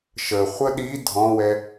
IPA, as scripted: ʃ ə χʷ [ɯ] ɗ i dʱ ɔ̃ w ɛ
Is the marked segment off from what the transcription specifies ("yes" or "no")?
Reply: yes